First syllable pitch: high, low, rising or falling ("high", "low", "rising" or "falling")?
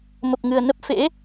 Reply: low